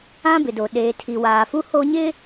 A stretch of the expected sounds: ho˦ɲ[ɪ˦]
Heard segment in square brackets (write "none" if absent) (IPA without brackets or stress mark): ɪ˦